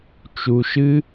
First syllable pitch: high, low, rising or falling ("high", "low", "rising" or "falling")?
low